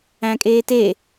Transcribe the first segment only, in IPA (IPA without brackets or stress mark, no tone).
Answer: æ̃